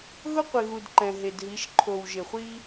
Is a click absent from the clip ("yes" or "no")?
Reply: no